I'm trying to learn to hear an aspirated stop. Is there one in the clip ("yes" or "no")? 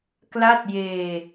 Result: no